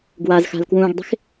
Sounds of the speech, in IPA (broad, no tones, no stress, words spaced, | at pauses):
ɡwaz xa̤lkwũːɡdˤi̤x